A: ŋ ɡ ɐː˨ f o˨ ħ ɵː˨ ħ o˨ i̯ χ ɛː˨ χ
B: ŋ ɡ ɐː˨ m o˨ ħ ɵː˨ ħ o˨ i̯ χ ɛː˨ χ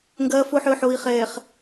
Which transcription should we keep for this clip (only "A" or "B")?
A